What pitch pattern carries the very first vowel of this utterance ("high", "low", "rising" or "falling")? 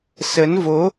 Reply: rising